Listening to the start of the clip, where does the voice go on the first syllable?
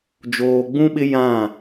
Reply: low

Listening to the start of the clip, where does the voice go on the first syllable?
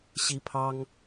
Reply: high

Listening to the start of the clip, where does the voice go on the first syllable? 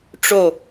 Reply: falling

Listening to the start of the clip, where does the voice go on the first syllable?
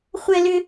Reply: high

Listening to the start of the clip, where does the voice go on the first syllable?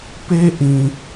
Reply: high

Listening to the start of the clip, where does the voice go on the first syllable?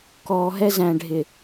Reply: low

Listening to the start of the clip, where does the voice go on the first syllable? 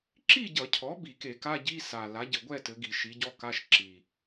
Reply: falling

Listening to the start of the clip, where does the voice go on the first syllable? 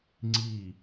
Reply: falling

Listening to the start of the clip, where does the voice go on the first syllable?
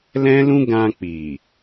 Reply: high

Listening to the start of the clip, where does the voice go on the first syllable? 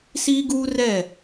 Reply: high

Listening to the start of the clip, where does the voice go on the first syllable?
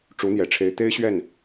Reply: rising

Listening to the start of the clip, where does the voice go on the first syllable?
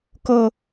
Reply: high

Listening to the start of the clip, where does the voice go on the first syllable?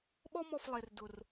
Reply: high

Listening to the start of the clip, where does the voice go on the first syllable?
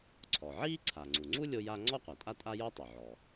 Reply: low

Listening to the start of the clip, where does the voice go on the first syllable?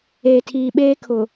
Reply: low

